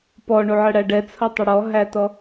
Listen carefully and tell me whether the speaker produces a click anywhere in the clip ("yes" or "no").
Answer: no